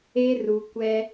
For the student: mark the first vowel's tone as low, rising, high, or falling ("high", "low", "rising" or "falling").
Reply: high